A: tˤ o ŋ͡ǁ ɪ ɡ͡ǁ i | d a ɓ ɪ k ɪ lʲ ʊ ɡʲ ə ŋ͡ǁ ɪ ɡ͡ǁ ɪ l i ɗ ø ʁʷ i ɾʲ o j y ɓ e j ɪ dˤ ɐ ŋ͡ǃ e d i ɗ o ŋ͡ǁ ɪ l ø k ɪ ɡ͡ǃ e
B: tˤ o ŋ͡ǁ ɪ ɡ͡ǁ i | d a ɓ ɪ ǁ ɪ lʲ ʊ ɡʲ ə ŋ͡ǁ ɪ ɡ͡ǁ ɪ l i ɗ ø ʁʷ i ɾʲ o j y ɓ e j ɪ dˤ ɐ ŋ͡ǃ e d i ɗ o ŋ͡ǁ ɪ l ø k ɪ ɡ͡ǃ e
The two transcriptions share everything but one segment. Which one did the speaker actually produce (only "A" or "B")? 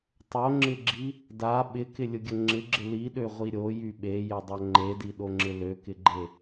A